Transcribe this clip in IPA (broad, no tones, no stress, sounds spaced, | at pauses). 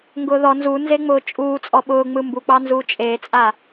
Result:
ŋ ɡ ʊː ð ɔ n z u n z e ŋ͡m ʊː t͡ʃʼ uː t͡sʼ ɔ ɓ ʊː ŋ͡m ɯ m b u k͡p ɑ n z uː t͡ʃʼ eː t͡sʼ a